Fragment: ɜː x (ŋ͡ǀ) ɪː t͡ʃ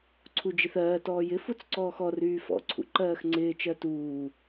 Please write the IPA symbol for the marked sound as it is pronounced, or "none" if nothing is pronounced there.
ŋ͡ǀ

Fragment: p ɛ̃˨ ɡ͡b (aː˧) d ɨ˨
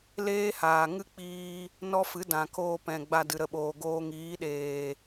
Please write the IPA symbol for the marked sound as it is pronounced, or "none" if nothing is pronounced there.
a˧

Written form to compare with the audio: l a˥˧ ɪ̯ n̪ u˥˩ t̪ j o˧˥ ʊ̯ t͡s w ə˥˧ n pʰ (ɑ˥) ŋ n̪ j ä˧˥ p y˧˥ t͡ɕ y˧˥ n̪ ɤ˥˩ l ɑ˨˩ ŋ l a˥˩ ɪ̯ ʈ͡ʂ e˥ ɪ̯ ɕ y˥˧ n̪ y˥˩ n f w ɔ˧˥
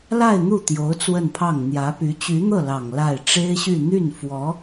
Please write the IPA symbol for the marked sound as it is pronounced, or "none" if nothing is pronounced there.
ɑ˥˩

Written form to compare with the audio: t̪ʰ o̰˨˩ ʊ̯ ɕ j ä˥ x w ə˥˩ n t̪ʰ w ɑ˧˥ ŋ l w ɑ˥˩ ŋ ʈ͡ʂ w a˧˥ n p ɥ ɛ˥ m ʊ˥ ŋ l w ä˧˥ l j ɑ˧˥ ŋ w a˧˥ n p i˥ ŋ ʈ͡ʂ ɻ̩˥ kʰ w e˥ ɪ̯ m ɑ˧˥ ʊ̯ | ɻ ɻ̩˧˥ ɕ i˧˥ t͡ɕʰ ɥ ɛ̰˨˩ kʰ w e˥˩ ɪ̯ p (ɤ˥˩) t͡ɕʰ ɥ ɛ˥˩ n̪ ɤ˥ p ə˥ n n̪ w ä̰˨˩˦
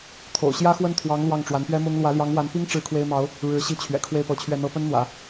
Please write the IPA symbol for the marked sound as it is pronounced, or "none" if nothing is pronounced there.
ɤ˧˥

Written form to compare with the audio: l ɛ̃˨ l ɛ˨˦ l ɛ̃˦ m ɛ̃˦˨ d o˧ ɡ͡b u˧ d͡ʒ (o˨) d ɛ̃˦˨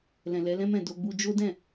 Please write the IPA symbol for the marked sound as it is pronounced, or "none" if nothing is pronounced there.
o˦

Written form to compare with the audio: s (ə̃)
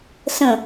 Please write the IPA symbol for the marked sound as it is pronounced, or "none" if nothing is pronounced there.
ə̃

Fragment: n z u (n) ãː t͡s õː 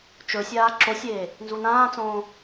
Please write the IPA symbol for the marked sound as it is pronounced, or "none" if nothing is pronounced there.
n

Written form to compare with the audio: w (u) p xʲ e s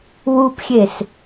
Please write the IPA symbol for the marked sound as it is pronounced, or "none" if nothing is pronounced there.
u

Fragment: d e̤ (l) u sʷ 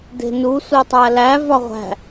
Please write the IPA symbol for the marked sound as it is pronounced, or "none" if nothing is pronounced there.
n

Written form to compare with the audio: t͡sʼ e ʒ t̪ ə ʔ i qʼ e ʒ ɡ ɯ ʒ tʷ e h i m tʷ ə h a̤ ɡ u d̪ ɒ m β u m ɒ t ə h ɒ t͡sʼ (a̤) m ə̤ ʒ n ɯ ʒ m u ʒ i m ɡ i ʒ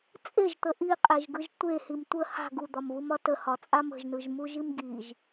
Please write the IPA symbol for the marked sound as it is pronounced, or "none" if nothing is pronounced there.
a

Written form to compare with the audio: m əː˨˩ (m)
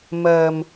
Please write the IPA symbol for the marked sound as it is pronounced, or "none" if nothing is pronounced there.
m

